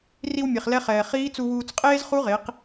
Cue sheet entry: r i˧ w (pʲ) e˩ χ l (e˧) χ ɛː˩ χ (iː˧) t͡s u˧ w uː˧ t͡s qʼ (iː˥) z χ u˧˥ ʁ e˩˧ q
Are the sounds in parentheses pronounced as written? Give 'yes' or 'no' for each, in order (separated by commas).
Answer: no, no, no, no